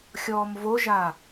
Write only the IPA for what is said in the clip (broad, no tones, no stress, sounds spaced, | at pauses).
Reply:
xʲ ɔː m v o ʒ a